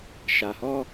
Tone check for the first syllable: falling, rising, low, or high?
low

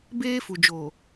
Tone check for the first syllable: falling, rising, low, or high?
high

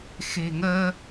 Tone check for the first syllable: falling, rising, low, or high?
low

